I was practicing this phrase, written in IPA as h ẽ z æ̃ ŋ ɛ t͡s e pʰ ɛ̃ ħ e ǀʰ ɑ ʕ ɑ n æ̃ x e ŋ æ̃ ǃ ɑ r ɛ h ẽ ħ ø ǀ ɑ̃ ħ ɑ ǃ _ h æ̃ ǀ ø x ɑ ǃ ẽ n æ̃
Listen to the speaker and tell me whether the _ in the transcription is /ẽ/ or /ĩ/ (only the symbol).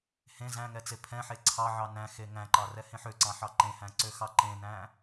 ẽ